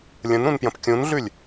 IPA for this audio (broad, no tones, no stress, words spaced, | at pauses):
lʲə̃nɾũnpjə̃p kʲũnɮʉlʲ